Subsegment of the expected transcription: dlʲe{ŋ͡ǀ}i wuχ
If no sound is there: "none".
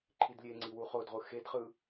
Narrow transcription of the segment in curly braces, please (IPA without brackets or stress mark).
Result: ŋ͡ǀ